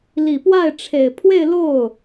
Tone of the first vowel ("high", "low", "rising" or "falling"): low